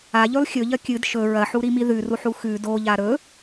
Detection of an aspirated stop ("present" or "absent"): absent